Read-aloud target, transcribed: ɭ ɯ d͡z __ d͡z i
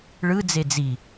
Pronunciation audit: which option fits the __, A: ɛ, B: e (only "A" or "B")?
B